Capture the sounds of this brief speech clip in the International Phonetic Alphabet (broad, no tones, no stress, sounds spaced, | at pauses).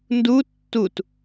n d u tː u t